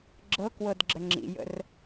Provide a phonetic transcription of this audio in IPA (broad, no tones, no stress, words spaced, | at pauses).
ɡ͡ǁɤkwɤdɡ͡ǁə ŋ͡ǁḭjə̰r